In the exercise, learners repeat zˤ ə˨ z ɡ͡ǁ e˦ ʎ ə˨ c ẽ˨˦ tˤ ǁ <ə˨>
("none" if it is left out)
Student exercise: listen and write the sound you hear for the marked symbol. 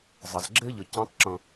ə̃˨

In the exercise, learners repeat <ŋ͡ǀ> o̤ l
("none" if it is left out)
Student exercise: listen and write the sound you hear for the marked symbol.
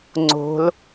ŋ͡ǀ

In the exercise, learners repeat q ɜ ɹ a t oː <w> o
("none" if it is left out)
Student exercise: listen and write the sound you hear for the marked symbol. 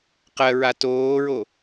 ɹ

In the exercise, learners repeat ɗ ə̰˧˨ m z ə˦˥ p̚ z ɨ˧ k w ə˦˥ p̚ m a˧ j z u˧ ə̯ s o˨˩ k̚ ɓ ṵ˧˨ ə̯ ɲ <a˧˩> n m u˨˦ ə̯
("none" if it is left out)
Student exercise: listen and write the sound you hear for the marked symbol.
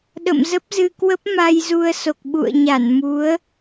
a˧˩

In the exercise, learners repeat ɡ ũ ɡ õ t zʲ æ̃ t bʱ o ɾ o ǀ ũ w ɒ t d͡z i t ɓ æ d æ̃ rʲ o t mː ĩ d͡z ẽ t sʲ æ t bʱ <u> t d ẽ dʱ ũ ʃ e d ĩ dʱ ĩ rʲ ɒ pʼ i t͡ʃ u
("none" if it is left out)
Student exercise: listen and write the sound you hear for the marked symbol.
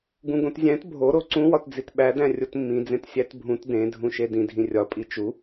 ũ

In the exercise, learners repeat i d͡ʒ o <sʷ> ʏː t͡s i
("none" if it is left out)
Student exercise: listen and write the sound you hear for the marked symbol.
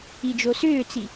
s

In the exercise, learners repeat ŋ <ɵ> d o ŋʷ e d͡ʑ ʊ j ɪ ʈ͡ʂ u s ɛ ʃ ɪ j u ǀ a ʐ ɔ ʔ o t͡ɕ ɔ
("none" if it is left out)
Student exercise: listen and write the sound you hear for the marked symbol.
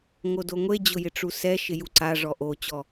o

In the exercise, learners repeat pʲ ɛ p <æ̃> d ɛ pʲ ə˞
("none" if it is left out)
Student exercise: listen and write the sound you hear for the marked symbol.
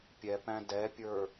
æ̃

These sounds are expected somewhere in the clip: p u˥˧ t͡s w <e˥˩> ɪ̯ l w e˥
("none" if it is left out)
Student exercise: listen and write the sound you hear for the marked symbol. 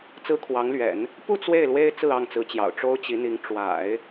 e˥˩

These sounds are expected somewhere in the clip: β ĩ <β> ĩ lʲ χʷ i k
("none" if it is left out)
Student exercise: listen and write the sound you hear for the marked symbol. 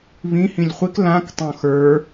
h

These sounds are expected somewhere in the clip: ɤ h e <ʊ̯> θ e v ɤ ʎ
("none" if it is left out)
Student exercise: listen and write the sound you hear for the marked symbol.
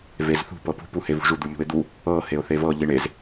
ʊ̯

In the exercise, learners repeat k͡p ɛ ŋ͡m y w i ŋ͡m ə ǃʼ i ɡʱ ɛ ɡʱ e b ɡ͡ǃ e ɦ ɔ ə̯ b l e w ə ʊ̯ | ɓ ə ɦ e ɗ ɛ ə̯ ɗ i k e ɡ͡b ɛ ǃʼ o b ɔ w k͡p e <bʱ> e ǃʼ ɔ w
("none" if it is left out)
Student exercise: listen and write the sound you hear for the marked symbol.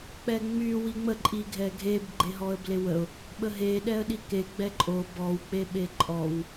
ɓ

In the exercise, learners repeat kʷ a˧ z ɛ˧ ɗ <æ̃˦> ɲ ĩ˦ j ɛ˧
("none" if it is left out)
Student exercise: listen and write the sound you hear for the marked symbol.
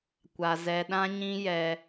ã˦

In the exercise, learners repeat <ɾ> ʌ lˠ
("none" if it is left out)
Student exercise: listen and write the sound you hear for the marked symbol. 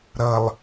ɾ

